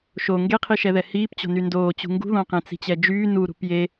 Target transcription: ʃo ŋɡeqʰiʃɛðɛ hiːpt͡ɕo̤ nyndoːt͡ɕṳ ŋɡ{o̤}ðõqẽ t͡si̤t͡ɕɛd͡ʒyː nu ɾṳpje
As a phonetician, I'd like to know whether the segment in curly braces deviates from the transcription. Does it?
yes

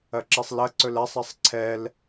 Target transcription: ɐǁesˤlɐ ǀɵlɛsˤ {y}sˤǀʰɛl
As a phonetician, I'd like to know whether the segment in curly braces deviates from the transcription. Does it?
yes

